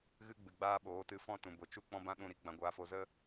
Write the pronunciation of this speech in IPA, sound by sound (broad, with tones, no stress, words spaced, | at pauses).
ɣɨ˦ɡ͡bɨ˨ɡ͡baː˦ɓoː˨˦ tɨ˨˦fɔ̃˦˨tũ˨bo˨ t͡ʃu˦ k͡pɔ̃˦bã˦ ɗũ˦˨ɾi˦ ɡ͡bã˧ɡʷaː˧fo˧ zə˦